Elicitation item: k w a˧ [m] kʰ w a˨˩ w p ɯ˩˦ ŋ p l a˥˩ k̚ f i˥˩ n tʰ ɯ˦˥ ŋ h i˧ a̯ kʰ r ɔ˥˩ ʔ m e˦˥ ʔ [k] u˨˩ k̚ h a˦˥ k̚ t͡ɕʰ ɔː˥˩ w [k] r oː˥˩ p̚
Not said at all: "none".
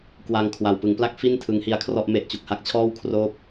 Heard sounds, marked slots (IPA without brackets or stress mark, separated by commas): ŋ, t͡ɕ, kʰ